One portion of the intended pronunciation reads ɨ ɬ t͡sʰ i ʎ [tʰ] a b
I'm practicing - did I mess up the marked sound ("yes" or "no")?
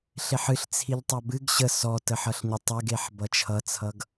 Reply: yes